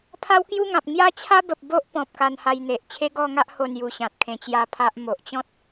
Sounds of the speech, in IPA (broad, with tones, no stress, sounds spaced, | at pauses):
pʰ a˦ w k j u˦ ŋ ã˨ p̚ ŋ j a˦ t͡ɕʰ a˦ b ə˨ p̚ b o˦ ʔ p ɔ̃˨ p̚ k a˧ n h a˧ j n̪ e˨ ʔ t͡ɕʰ e˦ ɡ ɔ˥˧ ŋ a˦ ʔ h o˥˧ n j u˧ ɕ ã˨ t̚ kʰ ẽ˧ t͡ɕ j a˦ pʰ a˦ ʔ m o˨ ʔ t͡ɕ ɔ̃˦ t̚